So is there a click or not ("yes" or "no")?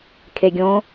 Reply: no